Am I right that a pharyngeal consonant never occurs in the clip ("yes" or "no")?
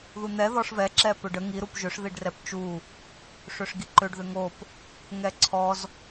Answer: yes